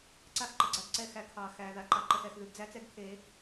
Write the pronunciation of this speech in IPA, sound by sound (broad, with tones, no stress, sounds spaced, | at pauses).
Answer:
ǀ a˦ x ǃ ə˨ ɡ͡ǀ a˦ ɡ ǀ ɛ˦ x æ˨ kʰ ɑ˨ x æ˨ ð a˨ ǃ ɑ˨ ǃ ə˨ x ɛ˨ x ð ʉ˨ ɡ d͡z æ˦ t͡s ɛ˦ ɡ kʰ e˨˦